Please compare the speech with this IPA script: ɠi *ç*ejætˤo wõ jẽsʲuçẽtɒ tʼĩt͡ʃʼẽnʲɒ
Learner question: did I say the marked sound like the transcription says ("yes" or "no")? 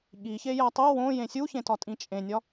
yes